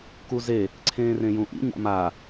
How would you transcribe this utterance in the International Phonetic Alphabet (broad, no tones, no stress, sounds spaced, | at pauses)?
k u z e | ǀʰ ẽː r ẽ j ũ ʔ ḭ ɲ a̰ m a